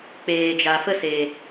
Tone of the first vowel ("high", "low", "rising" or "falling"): low